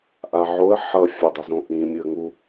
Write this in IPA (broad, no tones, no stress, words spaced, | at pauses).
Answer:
ʔaʕoə̯ ħʌ fʲadˤʌzõʔĩ mʲɯə̯ŋu